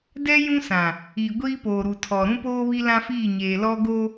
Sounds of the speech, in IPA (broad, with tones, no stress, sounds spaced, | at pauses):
d ɛ˦ j ũ˦ s ã˨ | i˨ ɡʷ iː˦ p oː˨ ɾ u˨ tʰ ɔ˨ ɾ ũ˦ p oː˦ β i˦ l ã˦ f iː˦˨ ɲ eː˨ l ɔ˦ ɡ o˦